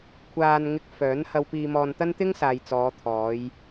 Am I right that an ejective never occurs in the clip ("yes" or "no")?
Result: yes